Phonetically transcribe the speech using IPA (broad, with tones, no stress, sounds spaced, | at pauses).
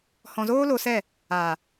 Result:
h ɔ̃˨ z oː˦ l o˧ s ɛ˦˨ | aː˨